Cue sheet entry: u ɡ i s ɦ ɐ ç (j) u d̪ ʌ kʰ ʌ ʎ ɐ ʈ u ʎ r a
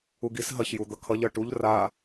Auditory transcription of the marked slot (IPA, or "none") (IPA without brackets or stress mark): j